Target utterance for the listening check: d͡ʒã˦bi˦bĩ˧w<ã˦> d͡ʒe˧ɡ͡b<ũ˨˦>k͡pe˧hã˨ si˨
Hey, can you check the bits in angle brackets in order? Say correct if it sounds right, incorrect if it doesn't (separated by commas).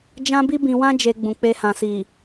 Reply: correct, incorrect